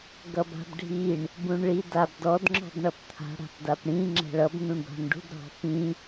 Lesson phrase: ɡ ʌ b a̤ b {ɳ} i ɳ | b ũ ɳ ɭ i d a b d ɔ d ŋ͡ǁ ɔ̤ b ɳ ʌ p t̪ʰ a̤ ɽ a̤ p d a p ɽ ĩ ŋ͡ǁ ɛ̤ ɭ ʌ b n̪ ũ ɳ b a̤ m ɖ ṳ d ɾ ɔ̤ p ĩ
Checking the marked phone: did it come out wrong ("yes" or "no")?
yes